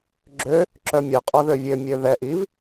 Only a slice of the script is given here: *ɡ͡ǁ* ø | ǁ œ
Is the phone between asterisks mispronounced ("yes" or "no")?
no